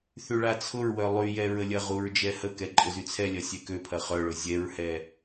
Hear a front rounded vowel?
yes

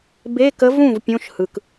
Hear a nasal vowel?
yes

